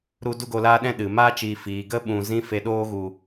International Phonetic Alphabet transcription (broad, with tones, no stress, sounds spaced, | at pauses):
ɾ u˦ d u˦ ɡ o˧ l aː˦ ɗ ɛ̃˦ ɗ ɨ˨ m aː˦ t͡ʃ iː˨ f iː˨ ɡ ə˦ ɓ ũ˨ z ĩ˦ f e˧ ɗ oː˦ ɣ u˨